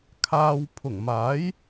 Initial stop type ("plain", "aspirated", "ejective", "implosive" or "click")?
aspirated